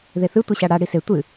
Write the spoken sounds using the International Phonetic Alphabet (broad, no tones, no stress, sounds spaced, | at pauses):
ð e θ ɨ tʷ ɨ ɕ a ɽ a ɽ i s e tʷ ɨ